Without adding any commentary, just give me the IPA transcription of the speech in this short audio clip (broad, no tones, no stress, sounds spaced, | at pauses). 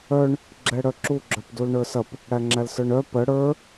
œ ɳ | ɡ͡ǁ ɛ ɽ œ ǁ u ɡ͡ǁ œ p d u l ɳ ə˞ s ɐ p | ɽ æ ŋ͡ǁ æ l s ə˞ ɳ œ p ə ɽ ə˞